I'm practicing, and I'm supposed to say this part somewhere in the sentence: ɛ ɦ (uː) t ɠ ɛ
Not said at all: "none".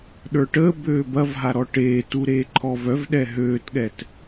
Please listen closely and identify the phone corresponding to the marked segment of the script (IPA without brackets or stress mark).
øː